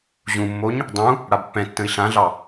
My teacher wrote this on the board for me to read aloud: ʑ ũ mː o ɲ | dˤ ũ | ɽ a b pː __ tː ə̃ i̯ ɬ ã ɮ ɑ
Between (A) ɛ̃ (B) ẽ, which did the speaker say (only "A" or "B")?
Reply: A